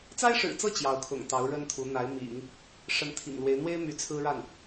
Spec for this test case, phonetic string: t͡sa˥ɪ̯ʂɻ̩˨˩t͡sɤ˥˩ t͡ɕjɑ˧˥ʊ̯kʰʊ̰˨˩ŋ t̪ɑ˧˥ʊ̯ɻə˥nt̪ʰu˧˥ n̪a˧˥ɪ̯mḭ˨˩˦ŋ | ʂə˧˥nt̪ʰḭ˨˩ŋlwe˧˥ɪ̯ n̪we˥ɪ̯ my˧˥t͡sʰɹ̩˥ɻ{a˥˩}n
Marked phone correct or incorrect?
correct